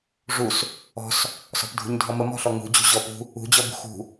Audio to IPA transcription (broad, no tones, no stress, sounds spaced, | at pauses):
ʐ u s | ɔ̤ s | s ɔ̤ p dʱ ṳ ɲ dʱ ɔ m ə m ɔ̤ ɬ ɔ ŋ ṳ d͡ʑ ṳ ʑ ɔ p ṳ | ṳ d͡ʑ ɔ b ṳ x ṳ